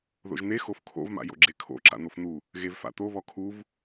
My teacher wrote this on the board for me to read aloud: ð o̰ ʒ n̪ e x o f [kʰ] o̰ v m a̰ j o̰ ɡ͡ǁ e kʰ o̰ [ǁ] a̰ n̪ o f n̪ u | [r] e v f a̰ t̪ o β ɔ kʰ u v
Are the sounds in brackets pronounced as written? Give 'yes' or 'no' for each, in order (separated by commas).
yes, yes, no